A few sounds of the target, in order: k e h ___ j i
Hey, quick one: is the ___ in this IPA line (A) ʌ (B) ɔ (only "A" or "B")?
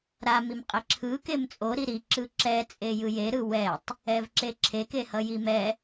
A